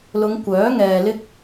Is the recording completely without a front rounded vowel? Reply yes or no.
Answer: no